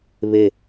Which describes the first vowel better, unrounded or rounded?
unrounded